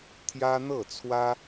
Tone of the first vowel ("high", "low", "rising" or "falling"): high